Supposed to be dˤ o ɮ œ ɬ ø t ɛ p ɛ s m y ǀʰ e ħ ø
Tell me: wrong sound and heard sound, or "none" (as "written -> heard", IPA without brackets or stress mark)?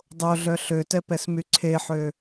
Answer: none